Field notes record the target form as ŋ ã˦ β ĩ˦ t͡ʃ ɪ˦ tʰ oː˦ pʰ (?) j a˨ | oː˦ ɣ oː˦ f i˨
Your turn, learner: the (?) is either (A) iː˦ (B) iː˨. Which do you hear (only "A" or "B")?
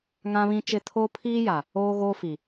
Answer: A